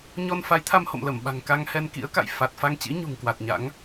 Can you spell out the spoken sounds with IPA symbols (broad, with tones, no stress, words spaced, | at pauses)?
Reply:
ɲɔ˧nfa˨˦jt̪ʰa˧m ho̰˧˨m lə˧˩mɓa̤˨˩ŋka˧ŋ hɛ˧nkḭ˧˥ə̯ka̰˧˨j fa˨˩t̚ fa˧ŋt͡ɕḭ˧˥ ɲṳ˨˩ŋkwa˨˩t̚ɲa̰˧˥ŋ